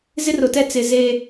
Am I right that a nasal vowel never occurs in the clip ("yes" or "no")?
yes